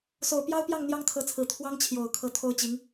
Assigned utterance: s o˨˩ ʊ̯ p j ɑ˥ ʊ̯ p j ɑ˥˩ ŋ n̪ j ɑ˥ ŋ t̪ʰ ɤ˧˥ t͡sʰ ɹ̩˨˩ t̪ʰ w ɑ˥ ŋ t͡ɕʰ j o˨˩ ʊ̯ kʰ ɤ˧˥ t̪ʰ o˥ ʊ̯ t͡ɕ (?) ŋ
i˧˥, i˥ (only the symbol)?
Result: i˧˥